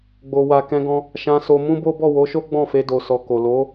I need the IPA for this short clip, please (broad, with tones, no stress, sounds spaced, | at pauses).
ɡ͡b o˨ w a˨ k ɛ̃˧ ɡ ɔ̃˧ | ʃ ã˧ s o˧ m ũ˦ b o˦ b ɔ˦˨ w o˨˦ ʃ o˦ ɡ͡b ɔ̃˦˨ f e˧ d o˨ s ɔ˨ k o˨ l o˨˦